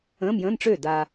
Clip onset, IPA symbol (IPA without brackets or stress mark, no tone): ə̃ː